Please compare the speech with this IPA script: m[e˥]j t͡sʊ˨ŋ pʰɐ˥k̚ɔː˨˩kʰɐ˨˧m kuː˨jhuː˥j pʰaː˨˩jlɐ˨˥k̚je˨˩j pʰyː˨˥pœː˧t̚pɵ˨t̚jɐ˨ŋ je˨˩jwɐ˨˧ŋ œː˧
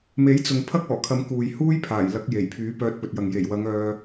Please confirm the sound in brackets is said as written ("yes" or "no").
no